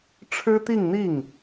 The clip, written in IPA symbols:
ʈ͡ʂʰ ɻ̩˥ t̪ i˥˧ ŋ n̪ i˥˩ ŋ

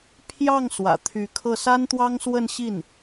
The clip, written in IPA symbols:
pʰ j ɑ˥˩ ŋ s w ä̰˨˩ t̪ʰ y˧˥ kʰ ɤ˥˩ s a˥ n t̪ w ɑ˥ ŋ s w ə˥˧ n ɕ i˥˩ n

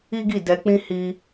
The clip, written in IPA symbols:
i˦ ɡ i˦˨ d ɛ˧ k͡p ĩ˦ h i˦

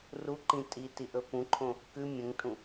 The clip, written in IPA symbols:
r u ǃ ĩ tʼ i t i ʔ ɵ p ũ ǃʰ õ | k ʉ mʲ ə̃ ŋ tʼ ũ

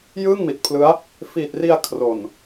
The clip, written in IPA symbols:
j ɯː˥˩ ŋ m i˨˩ t̚ pʰ l ɯ˦˥ a̯ | f iː˨˩ t̚ r i˧ a̯ kʰ r o˨˩ n

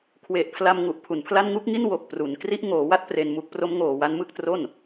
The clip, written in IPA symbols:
kʰ w e˨˩ ʔ pʰ l a˧ m ŋ u˨˩ ʔ pʰ u˨˩ n pʰ l a˥˩ n ŋ u˥˩ k̚ ŋ i˥˩ n w o˨˩ k̚ p r u˩˦ n k r i˦˥ ʔ ŋ oː˩˦ w a˥˩ t̚ p r e˧ n m u˦˥ k̚ p r o˦˥ m ŋ oː˨˩ w a˧ n m ɯ˥˩ k̚ t r o˥˩ n

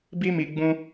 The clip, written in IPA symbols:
b i˦ m i˧ ɡ͡b ũ˦

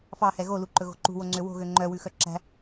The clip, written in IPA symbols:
f ɑ h ɛ ɣ o l u ǃ ɵ ɣ o̤ ǃ ṳ w o ŋ͡ǀ ø w o̤ ɣ ø ŋ͡ǃ œ w ʉ x œ ǁ æ̤

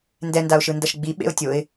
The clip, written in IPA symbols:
n d ɛ n d a ʊ̯ ʃ ɯ n d ʌ ʃ ɡ͡b i ɓ ḛ ʊ̯ tʲ o ɪ̯

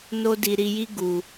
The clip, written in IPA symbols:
n o˦ d i˧ ɾ i˧ j i˦ ɡ u˧

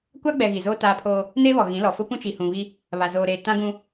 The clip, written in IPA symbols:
kʷ a˦ ɡ͡b ɛ˨ ɣ i˨ z oː˦ t aː˦ pʰ oː˦ | n eː˦ β ɔ˨ ɣ ĩ˨˦ l ɔ˨ f ʊ˦ p ũ˦ t͡ʃ i˨ h ũ˨ β i˦ | β a˨ z oː˨ ɾ eː˨ t ã˦ ɡ ũ˦

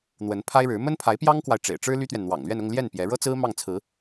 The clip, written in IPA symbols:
n̪ w ə˧˥ n pʰ a˥ ɪ̯ ɻ ɻ̩˧˥ m ə˥ n pʰ a˧˥ ɪ̯ p j ɑ˥ ŋ k w a˨ ɪ̯ ʈ͡ʂ ḛ˨˩ ɪ̯ ʈ͡ʂ ɻ̩˥ l y˥ t̪ ɥ ɛ˨ n n̪ w ɑ̰˨˩ ŋ l ɥ ɛ˥˧ n ʊ˥˧ ŋ l j ɛ˥˩ n p j ɛ˧˥ ɻ ɤ˥ t͡s ɹ̩˥ m ɑ˥˩ ŋ t͡sʰ ɹ̩˧˥

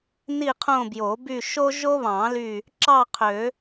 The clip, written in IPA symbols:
n i˥˧ qʰ õ˥˧ b j o˨˩˦ b y˥˧ ʃ o˥ ʒ o˥ β ɑ̃˨˩˦ l y˧˩ | ǁ ɑ˥˧ qʰ ø˨˩˦

